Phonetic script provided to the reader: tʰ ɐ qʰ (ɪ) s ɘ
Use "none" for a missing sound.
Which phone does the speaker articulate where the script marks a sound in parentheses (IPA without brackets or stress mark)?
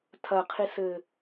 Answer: i